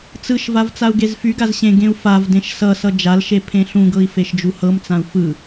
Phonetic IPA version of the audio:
t͡s ɯ ʃ v a v t͡s a u̯ ɡ e z f y ɡ a z ɕ ẽ ɡ ẽ u̯ f a v d ẽ ʃ s ʌ s ʌ d͡ʒ a l ʃ e pʰ ẽ ɬ ũ ɡ ɤ i̯ f e ʃ d͡ʒ u h ɤ m t͡s ã u̯ f ɯ

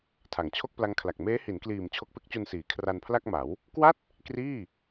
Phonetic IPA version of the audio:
tʰ a˩˦ ŋ t͡ɕʰ o˥˩ k̚ p l a˦˥ ŋ kʰ l a˨˩ k̚ m eː˦˥ h i˩˦ n k l iː˨˩ m t͡ɕʰ o˦˥ k̚ p e˦˥ k̚ t͡ɕ u˧ n s iː˩˦ kʰ r a˧ n pʰ l a˥˩ k̚ m a˩˦ w | k w a˥˩ t̚ | k r iː˥˩

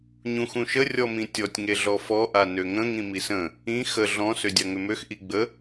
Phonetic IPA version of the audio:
ɲ ũ x ũ ʃ ə rʲ ɔ m ĩ tʲ ɔ tʲ ŋ e ɮ ɔ f ɔ ʔ a n ø ŋ ə̃ ŋ ĩ m i s ə̃ | ĩ x ə ɮ ɔ̃ s ø dʲ a ŋ ʏ m ø x ʔ i ɡ͡b ə

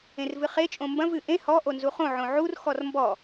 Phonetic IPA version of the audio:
ẽ r v ɨ χ e t͡ʃʼ õ m b ɐ̃ v ɨ ʔ ẽ h ɔ ʔ o n z u χ õ ʕ õ ʕ u r x ɔ r m b ɔ

